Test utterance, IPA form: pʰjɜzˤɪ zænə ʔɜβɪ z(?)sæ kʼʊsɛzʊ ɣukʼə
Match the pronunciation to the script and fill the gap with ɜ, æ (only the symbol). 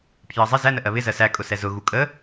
ɜ